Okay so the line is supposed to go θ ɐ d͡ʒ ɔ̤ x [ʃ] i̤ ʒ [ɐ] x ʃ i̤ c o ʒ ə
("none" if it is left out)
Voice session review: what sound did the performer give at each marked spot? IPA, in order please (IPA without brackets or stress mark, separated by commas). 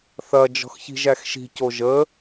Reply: ç, æ